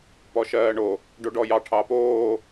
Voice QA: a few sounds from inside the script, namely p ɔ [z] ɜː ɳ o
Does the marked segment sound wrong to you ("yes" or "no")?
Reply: yes